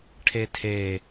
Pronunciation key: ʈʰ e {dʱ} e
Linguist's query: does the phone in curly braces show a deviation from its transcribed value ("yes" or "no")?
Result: yes